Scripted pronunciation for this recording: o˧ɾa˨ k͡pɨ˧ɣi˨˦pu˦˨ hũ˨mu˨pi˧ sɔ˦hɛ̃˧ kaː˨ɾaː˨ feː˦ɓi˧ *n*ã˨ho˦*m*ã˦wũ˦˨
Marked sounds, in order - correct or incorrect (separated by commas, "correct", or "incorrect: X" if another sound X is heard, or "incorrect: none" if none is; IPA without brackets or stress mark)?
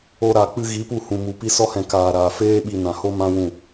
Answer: correct, correct